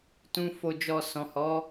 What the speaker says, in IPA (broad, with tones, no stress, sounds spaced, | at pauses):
t ũ˦ f o˧ d͡ʒ ɔ˧ s ɔ̃˨ h ɔ˨˦